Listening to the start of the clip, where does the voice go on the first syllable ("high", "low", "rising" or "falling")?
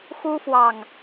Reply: high